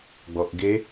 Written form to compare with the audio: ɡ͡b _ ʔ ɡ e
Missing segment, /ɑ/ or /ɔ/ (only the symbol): ɔ